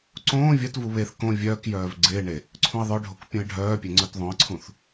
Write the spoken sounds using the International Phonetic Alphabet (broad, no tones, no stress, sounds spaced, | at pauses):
ǀ õː vʲ ɐ t v u β e θ k õ vʲ œː k j œː v ɡ͡ǀ ɪː ɳ e | ǀʰ ũ ɪ̯ ðˤ œ ɖʱ o k pʲ ũ ɪ̯ ɖʱ œː pʲ e ŋ͡ǀ œ t ðˤ õ ɪ̯ ǀʰ ũ θ